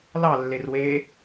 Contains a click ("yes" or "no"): no